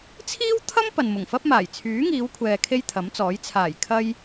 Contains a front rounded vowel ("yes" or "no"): yes